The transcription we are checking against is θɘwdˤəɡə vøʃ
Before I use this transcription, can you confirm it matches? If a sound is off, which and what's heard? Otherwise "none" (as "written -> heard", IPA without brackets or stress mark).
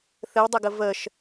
ø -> ə